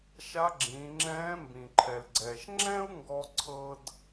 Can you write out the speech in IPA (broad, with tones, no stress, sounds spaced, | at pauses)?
ʃ a˧˥ ɡ͡ǁ ĩː˩˧ ŋ͡ǁ ɛ̃ː˧˥ m b ĩ˩ ǃʰ ɛ˩ l ɡ͡ǀ ɛː˩ ʃ ŋ͡ǁ ɛ̃˥ u̯ ŋ ɡ ɔ˧ ǀʰ ɤ˧ d